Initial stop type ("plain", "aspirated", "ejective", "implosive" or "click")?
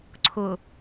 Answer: click